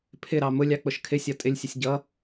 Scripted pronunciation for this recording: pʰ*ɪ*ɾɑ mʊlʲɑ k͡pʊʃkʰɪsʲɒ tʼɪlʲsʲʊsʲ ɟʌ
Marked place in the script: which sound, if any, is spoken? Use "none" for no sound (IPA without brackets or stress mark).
ɪ